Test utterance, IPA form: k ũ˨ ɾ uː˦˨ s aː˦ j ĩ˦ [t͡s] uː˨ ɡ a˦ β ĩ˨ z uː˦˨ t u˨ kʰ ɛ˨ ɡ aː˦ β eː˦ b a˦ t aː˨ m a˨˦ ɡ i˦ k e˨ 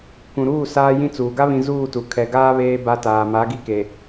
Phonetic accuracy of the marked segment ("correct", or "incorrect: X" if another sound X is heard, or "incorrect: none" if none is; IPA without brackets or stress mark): correct